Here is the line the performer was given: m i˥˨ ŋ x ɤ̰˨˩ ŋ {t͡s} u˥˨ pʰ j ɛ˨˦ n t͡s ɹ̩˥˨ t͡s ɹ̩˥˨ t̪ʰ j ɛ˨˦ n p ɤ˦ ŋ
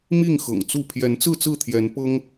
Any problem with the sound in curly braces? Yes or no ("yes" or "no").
no